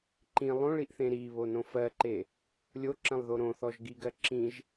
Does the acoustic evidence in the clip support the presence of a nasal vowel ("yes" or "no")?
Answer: yes